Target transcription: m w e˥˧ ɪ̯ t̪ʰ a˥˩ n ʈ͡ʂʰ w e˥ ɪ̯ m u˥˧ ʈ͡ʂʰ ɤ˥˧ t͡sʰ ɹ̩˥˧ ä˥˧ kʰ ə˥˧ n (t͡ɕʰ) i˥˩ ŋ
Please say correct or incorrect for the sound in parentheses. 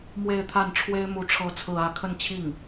correct